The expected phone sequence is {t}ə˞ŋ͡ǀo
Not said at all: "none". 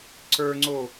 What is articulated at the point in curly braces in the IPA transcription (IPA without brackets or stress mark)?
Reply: ǀ